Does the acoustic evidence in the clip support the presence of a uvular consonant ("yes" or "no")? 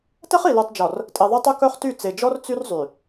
yes